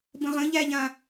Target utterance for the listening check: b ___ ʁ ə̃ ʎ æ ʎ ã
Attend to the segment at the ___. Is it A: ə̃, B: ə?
A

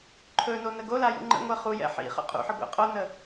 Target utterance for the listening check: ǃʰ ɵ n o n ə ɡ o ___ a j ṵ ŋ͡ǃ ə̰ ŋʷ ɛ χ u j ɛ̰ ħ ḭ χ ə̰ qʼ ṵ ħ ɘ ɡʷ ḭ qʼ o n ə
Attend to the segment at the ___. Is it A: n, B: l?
B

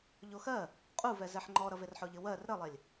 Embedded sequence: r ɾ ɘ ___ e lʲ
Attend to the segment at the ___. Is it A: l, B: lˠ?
B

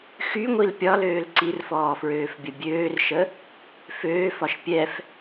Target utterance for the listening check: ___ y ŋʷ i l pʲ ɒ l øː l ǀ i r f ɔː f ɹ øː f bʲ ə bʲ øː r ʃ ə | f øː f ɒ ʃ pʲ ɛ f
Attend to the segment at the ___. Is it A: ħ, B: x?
B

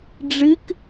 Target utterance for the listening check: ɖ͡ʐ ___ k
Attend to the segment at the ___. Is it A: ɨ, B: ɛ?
A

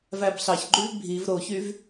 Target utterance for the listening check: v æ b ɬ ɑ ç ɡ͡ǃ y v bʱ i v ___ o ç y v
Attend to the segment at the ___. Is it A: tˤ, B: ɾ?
B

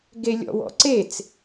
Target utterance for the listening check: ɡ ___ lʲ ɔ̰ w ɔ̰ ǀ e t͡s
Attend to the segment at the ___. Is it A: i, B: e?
B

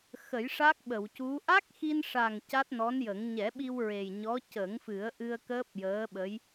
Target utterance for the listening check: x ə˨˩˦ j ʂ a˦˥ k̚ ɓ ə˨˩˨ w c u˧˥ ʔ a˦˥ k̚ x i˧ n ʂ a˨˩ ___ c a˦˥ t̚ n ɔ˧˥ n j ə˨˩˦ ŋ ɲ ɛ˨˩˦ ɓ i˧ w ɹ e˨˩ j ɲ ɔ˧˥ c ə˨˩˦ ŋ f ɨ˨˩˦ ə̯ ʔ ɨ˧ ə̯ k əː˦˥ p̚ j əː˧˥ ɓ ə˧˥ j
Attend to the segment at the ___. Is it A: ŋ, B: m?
A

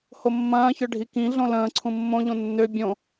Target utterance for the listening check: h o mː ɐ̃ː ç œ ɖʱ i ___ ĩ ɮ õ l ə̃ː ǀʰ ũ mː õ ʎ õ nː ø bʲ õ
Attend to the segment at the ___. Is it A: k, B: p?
A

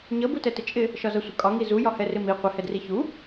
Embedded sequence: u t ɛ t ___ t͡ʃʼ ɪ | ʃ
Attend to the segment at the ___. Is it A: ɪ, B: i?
A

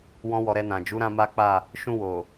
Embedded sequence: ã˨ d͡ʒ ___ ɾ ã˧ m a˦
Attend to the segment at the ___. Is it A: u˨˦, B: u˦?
A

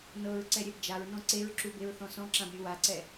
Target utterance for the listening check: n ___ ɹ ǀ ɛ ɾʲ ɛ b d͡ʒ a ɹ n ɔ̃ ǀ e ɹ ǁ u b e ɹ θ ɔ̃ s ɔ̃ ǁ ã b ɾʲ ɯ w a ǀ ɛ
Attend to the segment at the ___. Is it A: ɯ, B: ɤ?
B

